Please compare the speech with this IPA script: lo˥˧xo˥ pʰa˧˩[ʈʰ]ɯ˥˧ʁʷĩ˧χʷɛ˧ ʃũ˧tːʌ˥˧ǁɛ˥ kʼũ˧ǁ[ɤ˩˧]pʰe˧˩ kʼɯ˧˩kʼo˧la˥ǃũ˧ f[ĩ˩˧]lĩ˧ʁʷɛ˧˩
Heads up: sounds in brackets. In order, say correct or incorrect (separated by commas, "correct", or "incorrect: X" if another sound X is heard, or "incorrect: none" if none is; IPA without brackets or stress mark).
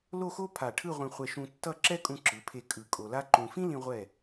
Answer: correct, incorrect: ɯ˩˧, incorrect: ĩ˥